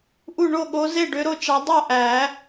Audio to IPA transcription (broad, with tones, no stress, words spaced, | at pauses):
ʔu˥˩ɳo˥˩ ɠo˨˦ ze˥˩ɖø˨˦ɾo˥˩t͡ʃɑ˨˦ dˤo˥˩ʔæ˨˩˦